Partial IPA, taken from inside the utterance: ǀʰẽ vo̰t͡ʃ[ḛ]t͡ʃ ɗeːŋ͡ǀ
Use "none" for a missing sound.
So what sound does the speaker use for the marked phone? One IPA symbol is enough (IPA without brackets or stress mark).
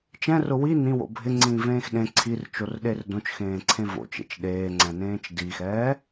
ḛ